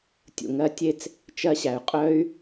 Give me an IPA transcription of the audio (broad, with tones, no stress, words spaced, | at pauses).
tʲṵ˨ŋɜ˧tʲe˦t͡s | t͡ʃɜ˧ɕæ˨y̯ qʼœ˦y̯